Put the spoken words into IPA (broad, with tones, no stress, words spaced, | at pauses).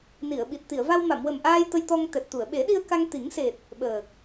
ni˨˩˨ə̯ɓi˨˩t̚ t̪i˨˩˨ə̯va˧w ma˨˩˨mwə˨˩mʔaː˧j t̪ə˧jt̪ɔ˧ŋt̪ɛ˨˩t̚t̪u˨˩˨ə̯ ɓe˨˩˦ɗi˧ə̯ ka˧ŋt̪i˨˩˦ŋ se˨˩t̚ | ɓəː˨˩k̚